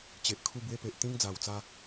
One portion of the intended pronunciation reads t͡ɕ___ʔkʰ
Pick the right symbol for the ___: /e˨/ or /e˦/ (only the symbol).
e˨